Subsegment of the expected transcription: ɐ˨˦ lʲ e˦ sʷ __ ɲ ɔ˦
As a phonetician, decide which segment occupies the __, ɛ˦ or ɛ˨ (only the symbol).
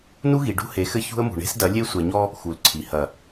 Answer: ɛ˨